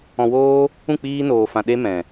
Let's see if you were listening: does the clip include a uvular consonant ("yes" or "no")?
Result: no